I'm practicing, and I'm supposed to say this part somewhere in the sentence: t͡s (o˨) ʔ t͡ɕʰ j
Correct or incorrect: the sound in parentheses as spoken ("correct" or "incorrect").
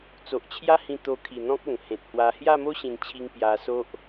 correct